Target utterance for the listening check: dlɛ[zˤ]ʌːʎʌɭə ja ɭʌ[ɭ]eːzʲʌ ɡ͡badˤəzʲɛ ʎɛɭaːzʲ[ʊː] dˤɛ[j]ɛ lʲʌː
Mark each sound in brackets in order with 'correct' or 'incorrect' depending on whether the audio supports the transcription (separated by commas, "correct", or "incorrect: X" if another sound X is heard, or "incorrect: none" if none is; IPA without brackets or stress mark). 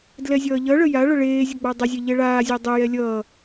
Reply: incorrect: zʲ, correct, incorrect: əː, correct